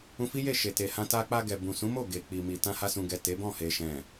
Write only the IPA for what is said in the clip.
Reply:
ũ˧fi˦je˦˨ ʃe˨te˨hã˧ ta˧k͡pa˧ɡɛ˨ bũ˨sũ˨˦mo˦˨ ɡe˨k͡pi˨mi˨ tã˧ha˧sũ˨ɡɛ˨ te˨˦bɔ̃˦˨ he˨ʃɛ̃˨

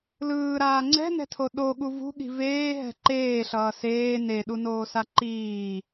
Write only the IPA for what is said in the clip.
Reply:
lɯːɾaː ŋ͡ǀɛ̤nɛ̤tʰo ɗoɠu vṳɠi̤ veːɦɛ̤ ǃeːɬʌː seː neɗunoːsa ǃiː

